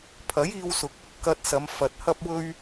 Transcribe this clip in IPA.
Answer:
pʰ ɐ˨˥ j iː˧ w s ʊ˨ k̚ | k ɐ˧ t̚ s ɐ˨˧ m f ɐ˨ t̚ h ɐ˥ p̚ w ɵ˥ ɥ

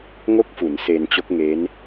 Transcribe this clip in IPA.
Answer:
ŋ o˥˩ k̚ f u˩˦ n s e˧ n t͡ɕ o˦˥ k̚ ŋ e˦˥ n

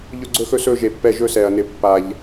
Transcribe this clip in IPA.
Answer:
ʎ ɵ˧ ɡ͡ǀ ɵ˧ x ɵ˧ s ɵ˧ ʒ e˨ pː ɛ˦˨ ʒ ɵ˦ s ɛ˨ ɐ̯ n ɪ˨ pː a˨ ʎ

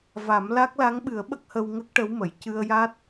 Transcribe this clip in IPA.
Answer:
v a˨˩˦ m l a˦˥ k̚ l a˧˥ ŋ ɓ ɨ˨˩˦ ə̯ ɓ ə˦˥ k̚ h ə˧ w ŋ ə˦˥ k̚ ʈ ə˧˥ w m ə˨˩˨ j c ɨ˧ ə̯ j a˦˥ t̚

